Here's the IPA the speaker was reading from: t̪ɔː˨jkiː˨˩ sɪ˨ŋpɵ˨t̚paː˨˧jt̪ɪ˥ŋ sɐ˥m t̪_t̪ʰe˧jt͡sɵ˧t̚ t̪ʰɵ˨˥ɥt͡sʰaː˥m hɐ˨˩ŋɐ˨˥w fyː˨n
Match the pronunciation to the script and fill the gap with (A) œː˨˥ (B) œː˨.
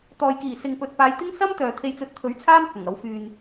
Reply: B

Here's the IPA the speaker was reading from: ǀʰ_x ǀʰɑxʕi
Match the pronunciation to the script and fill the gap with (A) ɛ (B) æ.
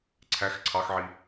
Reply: B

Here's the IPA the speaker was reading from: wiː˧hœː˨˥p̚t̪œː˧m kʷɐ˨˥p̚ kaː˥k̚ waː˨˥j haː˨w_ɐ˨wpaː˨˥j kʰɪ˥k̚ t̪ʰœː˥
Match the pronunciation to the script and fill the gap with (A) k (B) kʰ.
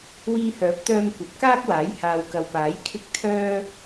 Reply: A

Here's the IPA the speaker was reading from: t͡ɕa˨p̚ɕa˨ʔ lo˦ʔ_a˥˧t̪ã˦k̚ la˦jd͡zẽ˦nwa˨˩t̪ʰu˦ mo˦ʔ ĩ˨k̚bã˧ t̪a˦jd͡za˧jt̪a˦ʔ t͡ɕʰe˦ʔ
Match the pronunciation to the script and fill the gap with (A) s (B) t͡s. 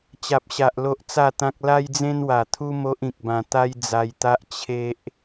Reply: B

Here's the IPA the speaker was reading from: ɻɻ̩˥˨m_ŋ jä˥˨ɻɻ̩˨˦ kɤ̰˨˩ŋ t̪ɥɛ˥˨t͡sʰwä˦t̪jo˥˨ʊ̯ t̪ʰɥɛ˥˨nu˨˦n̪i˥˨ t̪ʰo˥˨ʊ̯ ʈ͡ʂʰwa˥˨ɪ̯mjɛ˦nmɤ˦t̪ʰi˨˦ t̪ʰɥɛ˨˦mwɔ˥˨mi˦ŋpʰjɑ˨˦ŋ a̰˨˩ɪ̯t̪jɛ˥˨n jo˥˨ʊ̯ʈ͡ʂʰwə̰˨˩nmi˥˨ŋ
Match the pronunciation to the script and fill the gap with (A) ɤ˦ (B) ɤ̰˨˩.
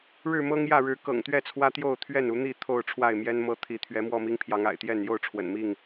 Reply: A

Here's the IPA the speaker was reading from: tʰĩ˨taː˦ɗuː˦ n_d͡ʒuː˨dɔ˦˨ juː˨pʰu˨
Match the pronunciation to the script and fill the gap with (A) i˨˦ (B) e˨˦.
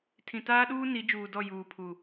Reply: A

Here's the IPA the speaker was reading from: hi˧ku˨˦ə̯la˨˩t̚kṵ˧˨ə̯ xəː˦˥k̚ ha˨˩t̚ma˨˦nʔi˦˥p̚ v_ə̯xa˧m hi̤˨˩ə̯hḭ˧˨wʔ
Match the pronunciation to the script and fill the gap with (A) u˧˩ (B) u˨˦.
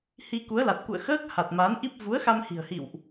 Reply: B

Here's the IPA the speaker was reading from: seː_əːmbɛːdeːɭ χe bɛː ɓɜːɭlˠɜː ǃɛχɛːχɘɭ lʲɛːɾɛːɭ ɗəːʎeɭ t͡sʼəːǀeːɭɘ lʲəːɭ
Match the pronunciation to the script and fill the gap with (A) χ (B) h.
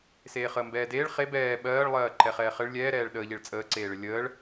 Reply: A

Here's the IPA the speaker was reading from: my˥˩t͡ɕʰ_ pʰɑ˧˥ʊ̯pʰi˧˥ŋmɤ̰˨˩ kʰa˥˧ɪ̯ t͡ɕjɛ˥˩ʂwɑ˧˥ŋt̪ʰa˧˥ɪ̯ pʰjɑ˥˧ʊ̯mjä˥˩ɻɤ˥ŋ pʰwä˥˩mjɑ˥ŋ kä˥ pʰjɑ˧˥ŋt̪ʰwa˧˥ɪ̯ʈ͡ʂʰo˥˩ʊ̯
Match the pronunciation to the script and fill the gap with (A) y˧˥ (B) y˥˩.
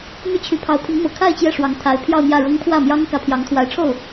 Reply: A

